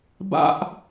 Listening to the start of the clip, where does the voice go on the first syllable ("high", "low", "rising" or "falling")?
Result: high